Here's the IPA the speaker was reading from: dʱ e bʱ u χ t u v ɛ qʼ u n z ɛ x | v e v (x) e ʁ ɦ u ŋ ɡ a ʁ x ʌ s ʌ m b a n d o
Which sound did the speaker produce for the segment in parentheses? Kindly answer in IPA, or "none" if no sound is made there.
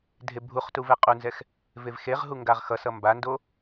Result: x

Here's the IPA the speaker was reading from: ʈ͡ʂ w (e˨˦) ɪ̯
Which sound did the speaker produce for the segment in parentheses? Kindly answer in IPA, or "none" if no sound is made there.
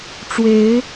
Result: e˨˦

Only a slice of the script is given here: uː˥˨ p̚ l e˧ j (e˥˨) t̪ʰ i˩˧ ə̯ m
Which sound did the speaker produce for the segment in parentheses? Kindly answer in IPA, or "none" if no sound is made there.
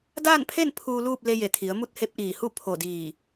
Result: e˧˩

